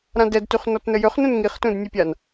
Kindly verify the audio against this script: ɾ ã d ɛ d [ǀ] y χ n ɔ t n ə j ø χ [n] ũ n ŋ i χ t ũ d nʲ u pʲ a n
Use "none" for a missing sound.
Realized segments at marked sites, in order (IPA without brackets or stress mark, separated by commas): t, n